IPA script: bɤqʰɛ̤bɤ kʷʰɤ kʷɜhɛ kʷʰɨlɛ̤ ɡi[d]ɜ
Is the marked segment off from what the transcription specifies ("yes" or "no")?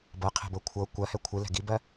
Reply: yes